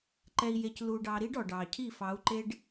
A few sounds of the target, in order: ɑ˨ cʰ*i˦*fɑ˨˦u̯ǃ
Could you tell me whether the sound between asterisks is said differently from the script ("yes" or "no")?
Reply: yes